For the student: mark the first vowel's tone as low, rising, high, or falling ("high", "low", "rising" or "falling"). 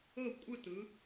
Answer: falling